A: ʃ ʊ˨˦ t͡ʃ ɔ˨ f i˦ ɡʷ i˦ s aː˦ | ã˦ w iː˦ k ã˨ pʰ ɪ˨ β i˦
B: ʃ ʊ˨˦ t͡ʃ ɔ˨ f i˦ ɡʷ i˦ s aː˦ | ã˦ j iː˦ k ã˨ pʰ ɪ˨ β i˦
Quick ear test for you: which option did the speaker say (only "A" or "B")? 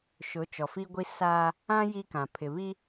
B